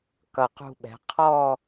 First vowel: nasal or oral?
oral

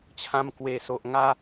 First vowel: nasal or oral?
nasal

